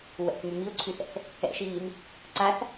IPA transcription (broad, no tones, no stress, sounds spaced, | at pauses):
w ɛ̰ θ m y m i ʊ̯ ǀʰ y θ ɛ̰ θ | ɛ̰ ʃ iː m | ǀ a θ